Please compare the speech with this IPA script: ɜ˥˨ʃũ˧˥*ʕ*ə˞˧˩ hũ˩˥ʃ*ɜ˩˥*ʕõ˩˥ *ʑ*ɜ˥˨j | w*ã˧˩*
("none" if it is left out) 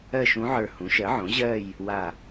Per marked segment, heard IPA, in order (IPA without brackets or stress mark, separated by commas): ʕ, ɜ˩˥, ʑ, a˧˩